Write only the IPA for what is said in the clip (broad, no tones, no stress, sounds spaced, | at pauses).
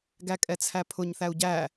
ɡ æ kʼ ɛ t͡sʰ æ pʰ ʊ ɲ θ æ u̯ ɟ æ